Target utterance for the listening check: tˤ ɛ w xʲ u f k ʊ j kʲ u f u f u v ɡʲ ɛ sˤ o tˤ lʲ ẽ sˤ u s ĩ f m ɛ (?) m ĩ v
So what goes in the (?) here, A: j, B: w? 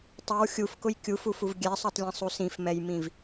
A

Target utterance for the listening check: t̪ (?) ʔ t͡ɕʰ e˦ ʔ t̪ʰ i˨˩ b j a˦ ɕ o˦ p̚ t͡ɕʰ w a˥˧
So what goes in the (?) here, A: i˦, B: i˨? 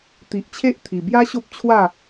B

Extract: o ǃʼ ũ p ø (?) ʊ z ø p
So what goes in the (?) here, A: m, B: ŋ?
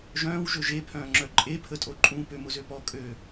A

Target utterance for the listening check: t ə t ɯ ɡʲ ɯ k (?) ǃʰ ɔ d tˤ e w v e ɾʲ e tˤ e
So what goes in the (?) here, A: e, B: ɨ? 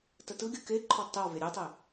A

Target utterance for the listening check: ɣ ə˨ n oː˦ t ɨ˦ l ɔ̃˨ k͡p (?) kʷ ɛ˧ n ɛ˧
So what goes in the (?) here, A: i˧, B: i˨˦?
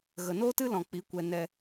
B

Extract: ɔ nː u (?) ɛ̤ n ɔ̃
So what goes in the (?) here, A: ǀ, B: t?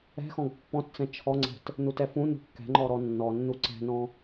A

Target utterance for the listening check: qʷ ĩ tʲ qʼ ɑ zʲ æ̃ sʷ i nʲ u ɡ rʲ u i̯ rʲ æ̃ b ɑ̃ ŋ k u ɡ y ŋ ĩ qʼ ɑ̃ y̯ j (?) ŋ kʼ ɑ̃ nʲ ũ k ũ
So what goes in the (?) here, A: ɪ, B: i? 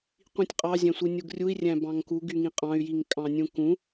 B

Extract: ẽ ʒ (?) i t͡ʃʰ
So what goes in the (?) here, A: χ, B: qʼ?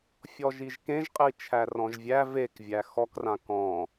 B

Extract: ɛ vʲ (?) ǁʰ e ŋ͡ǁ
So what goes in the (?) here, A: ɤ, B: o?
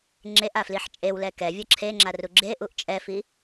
A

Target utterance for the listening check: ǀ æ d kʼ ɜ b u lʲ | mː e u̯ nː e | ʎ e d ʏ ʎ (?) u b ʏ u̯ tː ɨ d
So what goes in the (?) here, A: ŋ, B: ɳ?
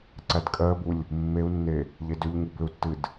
A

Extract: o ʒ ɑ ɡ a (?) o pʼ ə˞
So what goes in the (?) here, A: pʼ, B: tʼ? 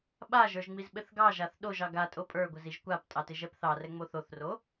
B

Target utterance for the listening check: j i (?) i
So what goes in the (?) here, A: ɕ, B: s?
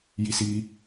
B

